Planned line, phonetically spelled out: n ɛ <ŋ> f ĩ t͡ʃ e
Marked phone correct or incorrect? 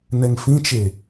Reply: correct